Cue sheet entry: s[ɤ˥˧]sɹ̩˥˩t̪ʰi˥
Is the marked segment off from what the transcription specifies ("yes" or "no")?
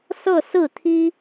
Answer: no